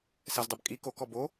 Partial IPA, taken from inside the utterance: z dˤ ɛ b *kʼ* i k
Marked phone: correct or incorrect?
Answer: correct